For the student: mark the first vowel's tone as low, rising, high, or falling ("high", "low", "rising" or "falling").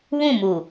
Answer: falling